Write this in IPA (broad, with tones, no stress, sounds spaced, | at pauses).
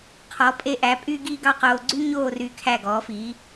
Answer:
qʰ ɔ˩˧ pʼ e˧ ʔ æ˩˧ pʼ y˥ ɡ iː˥ ɡ ɑ˥˧ q oː˧ ɡ͡ǀ y˥ ɲ oː˥˧ r y˧˩ kʰ æ˧˩ ɡ ɔː˩˧ f iː˩˧